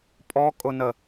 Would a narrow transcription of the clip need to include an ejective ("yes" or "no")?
yes